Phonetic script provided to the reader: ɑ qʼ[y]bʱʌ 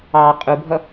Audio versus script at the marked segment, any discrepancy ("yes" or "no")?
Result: yes